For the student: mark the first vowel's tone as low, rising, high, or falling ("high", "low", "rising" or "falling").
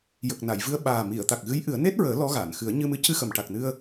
low